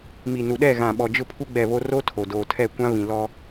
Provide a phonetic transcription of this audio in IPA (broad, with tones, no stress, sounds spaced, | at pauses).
m i˨ n u˨ ɗ ɛ˦˨ ɣ ã˨ ɓ ɔ˨ d͡ʒ ʊ˦ pʰ u˦ ɡ͡b ɛ˦˨ β o˦ r o˦ tʰ o˨ d oː˨ tʰ ɛ˦˨ kʷ ã˦ β ĩ˨ l ɔ˦